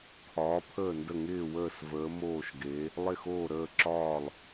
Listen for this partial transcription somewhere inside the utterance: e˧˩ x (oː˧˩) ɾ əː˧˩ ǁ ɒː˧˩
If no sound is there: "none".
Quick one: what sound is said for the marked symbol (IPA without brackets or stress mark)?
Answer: oː˧˩